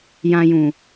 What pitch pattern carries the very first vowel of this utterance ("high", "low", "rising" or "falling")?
low